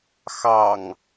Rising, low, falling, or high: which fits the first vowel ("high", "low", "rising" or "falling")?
low